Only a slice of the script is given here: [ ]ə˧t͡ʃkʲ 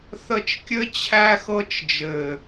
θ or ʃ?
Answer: θ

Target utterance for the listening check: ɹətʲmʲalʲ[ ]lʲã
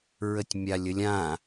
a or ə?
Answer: ə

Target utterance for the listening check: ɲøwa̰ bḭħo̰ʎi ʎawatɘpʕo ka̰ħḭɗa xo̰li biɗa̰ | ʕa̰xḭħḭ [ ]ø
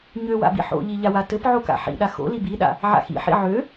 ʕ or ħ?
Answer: ʕ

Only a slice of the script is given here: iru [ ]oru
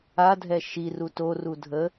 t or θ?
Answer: t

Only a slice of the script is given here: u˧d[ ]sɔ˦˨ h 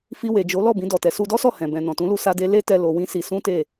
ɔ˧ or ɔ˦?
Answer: ɔ˦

